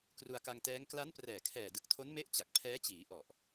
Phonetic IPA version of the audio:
k r u˧ a̯ k a˧ ŋ t ɛː˦˥ ŋ k l a˦˥ n p r ɛː˨˩ kʰ ɛː˨˩ d ɯ˨˩ k̚ tʰ o˦˥ n m e˦˥ ʔ t͡ɕ a˨˩ k̚ pʰ ɛː˦˥ t͡ɕ iː˩˦ ʔ ɔ˨˩ ʔ

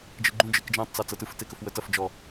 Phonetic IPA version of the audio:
d͡ʒ ɯ ɡ͡ǃ ũ d͡ʒ ɯ k d͡ʒ ɛ̃ tˤ t͡s a t͡s ɤ t ɯ f t e k ə f w ə t ɐ f d͡ʒ ɔ

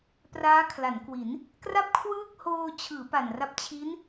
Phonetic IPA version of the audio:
p r aː˦˥ kʰ l a˩˦ n k w i˩˦ n | k r a˥˩ p̚ kʰ w ɯː˥˩ k̚ h oː˧ t͡ɕʰ ɯː˩˦ p a˨˩ n r a˥˩ p̚ t͡ɕʰ i˦˥ n

